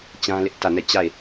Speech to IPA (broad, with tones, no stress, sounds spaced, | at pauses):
t͡ɕ ã˦ l ɪ˦ ʔ t ä˦˨ n ɛ˦˨ t͡ɕ a˦˨ ɪ̯